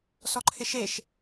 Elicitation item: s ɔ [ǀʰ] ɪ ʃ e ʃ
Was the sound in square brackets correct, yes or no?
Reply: no